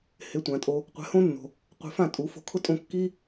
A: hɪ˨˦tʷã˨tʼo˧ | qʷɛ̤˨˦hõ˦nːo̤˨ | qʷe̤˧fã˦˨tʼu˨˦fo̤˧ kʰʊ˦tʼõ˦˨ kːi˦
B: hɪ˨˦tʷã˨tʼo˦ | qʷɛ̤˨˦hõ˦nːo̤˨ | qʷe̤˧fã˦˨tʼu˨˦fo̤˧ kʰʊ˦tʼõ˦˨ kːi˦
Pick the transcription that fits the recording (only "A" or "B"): A